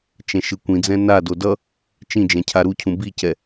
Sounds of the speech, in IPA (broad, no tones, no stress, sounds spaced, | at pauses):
t͡ʃ ɛ̃ ʃ ɯ kʷ ĩ d͡z ɛ̃ n a d o d ʌ | t͡ʃ ĩ d͡ʒ ɛ̃ cʰ a ɾ u cʰ ũ b i c ɛ